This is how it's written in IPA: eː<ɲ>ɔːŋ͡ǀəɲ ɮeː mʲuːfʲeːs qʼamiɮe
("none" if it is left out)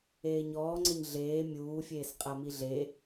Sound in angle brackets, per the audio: ɲ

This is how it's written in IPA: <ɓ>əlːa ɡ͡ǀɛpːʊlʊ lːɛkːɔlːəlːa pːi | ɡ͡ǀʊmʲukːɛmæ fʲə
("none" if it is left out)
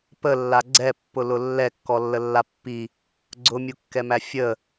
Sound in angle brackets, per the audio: p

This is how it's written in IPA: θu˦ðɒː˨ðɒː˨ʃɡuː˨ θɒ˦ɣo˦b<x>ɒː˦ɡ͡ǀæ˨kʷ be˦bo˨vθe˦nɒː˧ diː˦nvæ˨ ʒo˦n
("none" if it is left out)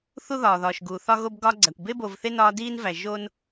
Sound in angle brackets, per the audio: ɡ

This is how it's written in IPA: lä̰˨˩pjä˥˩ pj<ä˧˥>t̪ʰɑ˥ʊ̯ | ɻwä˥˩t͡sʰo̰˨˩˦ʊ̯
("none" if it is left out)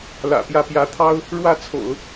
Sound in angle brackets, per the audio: ä˧˥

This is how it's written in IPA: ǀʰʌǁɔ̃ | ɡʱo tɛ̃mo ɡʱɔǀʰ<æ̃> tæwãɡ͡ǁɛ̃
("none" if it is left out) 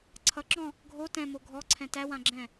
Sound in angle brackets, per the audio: ɛ̃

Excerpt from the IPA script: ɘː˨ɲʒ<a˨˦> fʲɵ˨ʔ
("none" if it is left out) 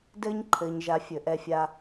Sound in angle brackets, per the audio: a˨˦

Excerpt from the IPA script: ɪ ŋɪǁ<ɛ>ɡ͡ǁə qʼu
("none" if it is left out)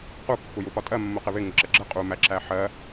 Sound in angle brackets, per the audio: ə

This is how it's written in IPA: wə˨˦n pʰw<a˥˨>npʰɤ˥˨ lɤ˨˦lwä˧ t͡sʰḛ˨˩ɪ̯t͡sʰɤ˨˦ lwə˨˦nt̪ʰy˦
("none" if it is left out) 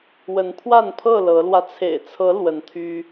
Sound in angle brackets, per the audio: a˥˨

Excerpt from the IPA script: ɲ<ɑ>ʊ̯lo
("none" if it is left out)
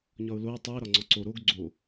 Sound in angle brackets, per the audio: ɒ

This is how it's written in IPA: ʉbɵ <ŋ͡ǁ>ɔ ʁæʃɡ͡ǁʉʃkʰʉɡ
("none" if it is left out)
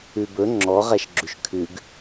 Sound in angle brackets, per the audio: ŋ͡ǁ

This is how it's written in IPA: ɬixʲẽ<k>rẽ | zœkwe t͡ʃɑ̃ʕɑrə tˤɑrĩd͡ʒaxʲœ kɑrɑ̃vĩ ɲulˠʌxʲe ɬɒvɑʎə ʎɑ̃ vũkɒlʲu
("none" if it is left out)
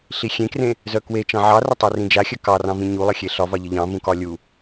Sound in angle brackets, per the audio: k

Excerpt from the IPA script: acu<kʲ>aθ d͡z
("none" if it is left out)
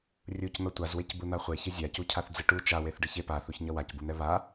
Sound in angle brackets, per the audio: cʰ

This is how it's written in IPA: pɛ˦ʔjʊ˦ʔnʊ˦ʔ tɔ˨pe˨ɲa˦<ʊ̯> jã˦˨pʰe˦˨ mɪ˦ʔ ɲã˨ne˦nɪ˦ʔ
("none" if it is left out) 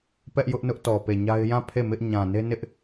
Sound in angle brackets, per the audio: ɪ̯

